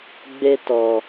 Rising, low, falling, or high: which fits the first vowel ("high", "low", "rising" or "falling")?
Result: high